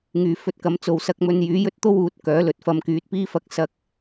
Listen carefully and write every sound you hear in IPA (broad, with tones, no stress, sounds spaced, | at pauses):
ŋ yː˨ f ɵ˧ t̚ k ɐ˨˧ m t͡s o˨˧ w s ɐ˧ k̚ m ɵ˧ n j yː˨˥ j ɵ˥ t̚ t̪ o˥ w uː˨˥ t̚ k œː˨˥ l ɵ˨˥ t̚ f ɐ˧ m k yː˨˥ t̚ p iː˥ f ɐ˧ k̚ s ɐ˧ k̚